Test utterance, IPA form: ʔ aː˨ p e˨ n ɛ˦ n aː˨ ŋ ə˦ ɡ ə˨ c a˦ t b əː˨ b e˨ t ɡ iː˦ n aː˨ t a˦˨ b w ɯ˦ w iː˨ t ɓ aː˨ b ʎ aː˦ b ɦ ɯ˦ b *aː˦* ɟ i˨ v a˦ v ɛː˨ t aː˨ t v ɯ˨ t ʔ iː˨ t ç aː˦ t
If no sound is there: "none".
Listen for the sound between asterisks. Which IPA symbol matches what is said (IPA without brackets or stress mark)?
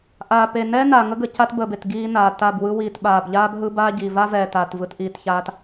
aː˦